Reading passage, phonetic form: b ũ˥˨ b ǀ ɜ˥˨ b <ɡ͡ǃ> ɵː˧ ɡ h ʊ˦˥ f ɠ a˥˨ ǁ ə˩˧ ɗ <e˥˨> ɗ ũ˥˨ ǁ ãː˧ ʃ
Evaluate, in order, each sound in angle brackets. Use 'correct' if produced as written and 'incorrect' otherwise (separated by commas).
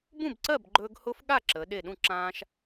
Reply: correct, incorrect